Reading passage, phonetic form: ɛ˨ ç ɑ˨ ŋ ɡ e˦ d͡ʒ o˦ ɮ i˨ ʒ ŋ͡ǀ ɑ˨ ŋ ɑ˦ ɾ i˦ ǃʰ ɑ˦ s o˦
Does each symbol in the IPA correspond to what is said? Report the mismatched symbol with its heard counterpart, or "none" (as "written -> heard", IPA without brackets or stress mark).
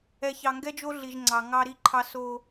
e˦ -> ɛ˦